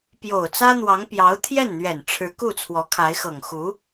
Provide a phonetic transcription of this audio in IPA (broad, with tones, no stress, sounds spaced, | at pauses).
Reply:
p j o˨˩ ʊ̯ t͡s ä˥ n̪ w ɑ˧˥ ŋ p j ɑ˧˥ ʊ̯ t̪ʰ j ɛ˥˩ n n̪ ɥ ɛ˨˩ n ʈ͡ʂʰ ɻ̩˧˥ k u˥˩ t͡sʰ w ɔ˧˥ kʰ a˧˥ ɪ̯ x ɤ˨˩ ŋ x u˧˥